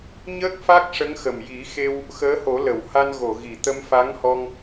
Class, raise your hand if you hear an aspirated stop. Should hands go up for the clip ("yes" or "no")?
no